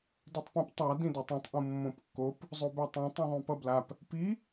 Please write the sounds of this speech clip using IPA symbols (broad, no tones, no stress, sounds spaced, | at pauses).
d i tˤ p õ p tˤ a d ĩ d u tˤ ũ tˤ ʔ ũ mː õ p kː o p | zˤ u b ɛ tˤ õ tˤ ĩ ðˤ ũ p ʌ b l a p | p i